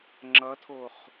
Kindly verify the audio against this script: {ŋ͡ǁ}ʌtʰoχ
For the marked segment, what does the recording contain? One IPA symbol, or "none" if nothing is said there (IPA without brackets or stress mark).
ŋ͡ǁ